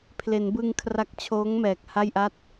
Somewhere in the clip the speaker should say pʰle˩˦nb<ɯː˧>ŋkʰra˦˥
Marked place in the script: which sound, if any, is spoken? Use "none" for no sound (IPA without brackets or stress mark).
ɯː˧